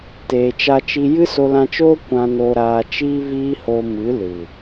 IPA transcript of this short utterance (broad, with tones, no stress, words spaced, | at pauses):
teː˨t͡ʃa˧t͡ʃi˧ jɨ˦so˧lã˧t͡ʃoː˦ kʷã˧no˧ɾaː˧t͡ʃiː˦ viː˦ho˧ mɨ˨˦lɨ˨